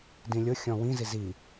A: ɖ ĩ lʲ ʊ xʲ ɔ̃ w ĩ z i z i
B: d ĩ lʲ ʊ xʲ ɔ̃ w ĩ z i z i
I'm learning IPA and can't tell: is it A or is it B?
B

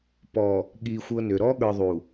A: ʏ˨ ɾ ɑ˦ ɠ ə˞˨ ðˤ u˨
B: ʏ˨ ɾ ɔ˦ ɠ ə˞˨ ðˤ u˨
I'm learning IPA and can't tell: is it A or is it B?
B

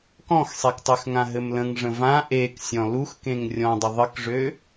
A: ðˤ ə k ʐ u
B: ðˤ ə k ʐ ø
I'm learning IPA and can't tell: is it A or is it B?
B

